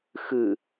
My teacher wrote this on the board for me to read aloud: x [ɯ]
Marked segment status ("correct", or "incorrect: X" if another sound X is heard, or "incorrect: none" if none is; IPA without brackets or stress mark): correct